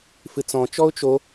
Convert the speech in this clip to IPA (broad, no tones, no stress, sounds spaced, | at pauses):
f ɨ t͡s ɔ̃ t͡ʃ ɔ ʊ̯ t͡ʃ o